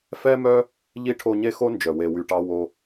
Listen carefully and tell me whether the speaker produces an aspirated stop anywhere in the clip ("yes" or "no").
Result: yes